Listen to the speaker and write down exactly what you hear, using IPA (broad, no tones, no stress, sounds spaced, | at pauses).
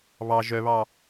β ɑ ʒ œ β ɑ